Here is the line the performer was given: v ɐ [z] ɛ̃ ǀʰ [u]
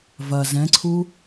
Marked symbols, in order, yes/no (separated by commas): yes, yes